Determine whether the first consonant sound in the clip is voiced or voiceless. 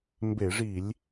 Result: voiced